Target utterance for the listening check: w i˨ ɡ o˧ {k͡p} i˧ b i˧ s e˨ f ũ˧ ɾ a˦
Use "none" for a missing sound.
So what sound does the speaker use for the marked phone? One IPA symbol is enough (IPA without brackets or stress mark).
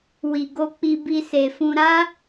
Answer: k͡p